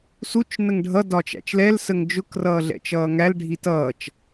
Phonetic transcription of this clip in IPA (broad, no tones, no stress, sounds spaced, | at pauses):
s u t͡ʃ n ə ŋ ɖʱ ʌ d ɒ t͡ʃ æ̰ t͡ʃ l ɛ l s ə ŋ d͡ʒ ʊ k r ʌː ɮ ɛ̰ t͡ʃ ʌː ŋ æ l ɖʱ i t ʌː t͡ʃ